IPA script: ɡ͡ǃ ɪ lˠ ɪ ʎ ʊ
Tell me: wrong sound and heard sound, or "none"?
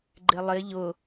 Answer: none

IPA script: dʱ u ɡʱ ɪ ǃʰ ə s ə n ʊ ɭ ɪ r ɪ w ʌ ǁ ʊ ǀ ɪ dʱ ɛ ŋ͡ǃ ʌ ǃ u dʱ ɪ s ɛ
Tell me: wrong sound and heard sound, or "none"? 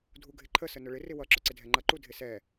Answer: none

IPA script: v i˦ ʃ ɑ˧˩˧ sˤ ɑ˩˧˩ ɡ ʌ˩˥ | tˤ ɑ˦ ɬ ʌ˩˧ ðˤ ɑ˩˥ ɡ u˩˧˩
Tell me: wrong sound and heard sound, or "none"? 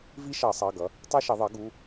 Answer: ɬ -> ʃ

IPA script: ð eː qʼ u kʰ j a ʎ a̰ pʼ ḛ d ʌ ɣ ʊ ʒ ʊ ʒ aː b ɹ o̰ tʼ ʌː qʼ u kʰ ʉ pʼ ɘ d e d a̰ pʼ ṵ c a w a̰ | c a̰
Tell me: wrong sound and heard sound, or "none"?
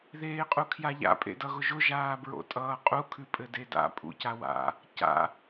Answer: none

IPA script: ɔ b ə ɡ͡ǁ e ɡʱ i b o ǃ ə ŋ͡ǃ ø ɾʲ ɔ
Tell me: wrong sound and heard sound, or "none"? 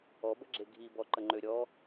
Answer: o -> ɔ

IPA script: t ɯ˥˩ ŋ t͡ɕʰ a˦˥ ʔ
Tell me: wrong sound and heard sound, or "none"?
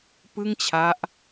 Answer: t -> p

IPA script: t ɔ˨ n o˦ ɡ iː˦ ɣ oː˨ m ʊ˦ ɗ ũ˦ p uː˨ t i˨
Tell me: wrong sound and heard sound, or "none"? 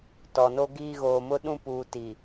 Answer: none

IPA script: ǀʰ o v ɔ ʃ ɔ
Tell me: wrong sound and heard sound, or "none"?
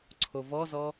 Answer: ʃ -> z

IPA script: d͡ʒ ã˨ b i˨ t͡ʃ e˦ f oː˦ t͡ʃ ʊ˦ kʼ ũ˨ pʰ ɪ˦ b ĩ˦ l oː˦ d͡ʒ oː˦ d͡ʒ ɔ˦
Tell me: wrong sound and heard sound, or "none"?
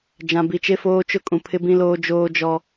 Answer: none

